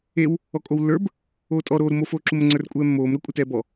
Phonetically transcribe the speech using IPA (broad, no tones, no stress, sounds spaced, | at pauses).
e w | ɔ kʼ o w lː ə˞ b | oː tʼ ɔ ɾ oː ɾ u m o f oː ǁ u m ə ŋ͡ǀ ə˞ r kʷʼ ɛː mː oː m ɾ ə kʷʼ e t ɛː b ɔ